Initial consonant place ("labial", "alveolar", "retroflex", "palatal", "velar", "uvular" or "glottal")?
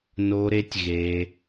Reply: alveolar